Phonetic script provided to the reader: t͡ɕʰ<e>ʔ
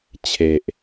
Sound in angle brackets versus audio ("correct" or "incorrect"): correct